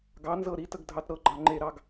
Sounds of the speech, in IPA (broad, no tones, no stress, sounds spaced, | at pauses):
ɡ ɑ n z ɤ ɾ i t ə ɡ dʱ ɑ t ɾ ɤ ɡ͡ǃ ɑ ŋ͡ǃ e ɾ ɑ ɡ